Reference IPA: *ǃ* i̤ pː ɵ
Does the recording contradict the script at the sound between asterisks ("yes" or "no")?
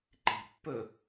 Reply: no